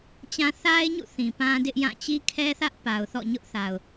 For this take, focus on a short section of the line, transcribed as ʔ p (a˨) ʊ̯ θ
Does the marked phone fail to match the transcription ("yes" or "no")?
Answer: no